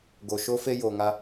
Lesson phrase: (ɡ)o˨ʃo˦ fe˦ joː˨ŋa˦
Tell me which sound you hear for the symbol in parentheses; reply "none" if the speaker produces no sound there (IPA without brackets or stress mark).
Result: ɡ